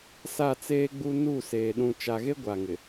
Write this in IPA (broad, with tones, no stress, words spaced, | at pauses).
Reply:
sa˦˨t͡seː˦ɡ͡bu˦ nu˦˨seː˨ ɗũ˨t͡ʃa˨ɣe˦ ɡʷa˨ŋɪ˨